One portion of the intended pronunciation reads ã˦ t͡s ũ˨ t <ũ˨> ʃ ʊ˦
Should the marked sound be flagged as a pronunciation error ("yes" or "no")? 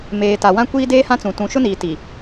no